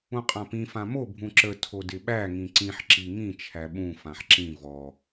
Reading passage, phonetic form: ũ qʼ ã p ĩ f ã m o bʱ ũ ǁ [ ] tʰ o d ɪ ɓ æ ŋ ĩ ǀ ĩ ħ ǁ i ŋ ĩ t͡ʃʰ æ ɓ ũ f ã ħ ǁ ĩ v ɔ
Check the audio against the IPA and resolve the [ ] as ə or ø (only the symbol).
ə